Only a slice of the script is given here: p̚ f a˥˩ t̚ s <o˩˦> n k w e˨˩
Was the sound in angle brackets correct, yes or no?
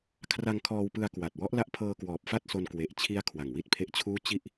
no